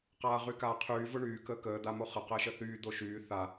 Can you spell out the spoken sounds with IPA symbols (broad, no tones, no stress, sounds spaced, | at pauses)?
q aː ʁ y k aː qʰ yː v ʊ ɳ yː k əː k əː d̪ a m o χ ə q əː ʃ ə θ yː d̪ o ʃ yː θ a